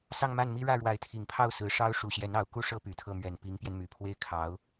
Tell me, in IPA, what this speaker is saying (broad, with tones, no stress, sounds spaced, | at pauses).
s ɑ˥˧ ŋ m a˥˩ n m i˥ ɻ ä˥˩ ɻ w a˧˥ ɪ̯ t̪ʰ i˨˩ ŋ pʰ ɑ˥˩ ʊ̯ s ɹ̩˧˥ ʂ ɑ˥ ʊ̯ ʂ u˨˩ ɕ j ɛ˧˥ n ɑ˧˥ ʊ̯ k u˥ ʂ ɤ˥ p y˨˩ t̪ʰ ɤ˥˩ m ɥ ɛ˨˩ n p i˧˥ ŋ p j ɛ˧ n m y˨˩ pʰ w e˥ ɪ̯ kʰ ɑ˧˥ ʊ̯